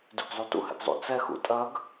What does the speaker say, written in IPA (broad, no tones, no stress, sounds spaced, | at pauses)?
d ʉ ɡ zˤ u t ṵ h ɛ̰ ɡ zˤ ṵ t͡s ɛ x ṵ tʼ ɐ ɡ